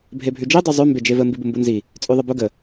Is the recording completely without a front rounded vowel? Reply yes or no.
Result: yes